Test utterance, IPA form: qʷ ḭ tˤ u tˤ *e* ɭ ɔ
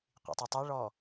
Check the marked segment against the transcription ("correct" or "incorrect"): incorrect